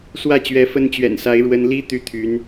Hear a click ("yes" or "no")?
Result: no